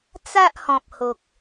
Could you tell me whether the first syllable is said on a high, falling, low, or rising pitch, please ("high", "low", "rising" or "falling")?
high